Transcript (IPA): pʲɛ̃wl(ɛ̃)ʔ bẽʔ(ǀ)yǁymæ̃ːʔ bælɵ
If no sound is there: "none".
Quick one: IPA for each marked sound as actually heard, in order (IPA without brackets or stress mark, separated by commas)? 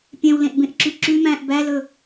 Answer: ẽ, ǁ